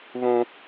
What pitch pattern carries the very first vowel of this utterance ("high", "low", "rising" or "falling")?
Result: high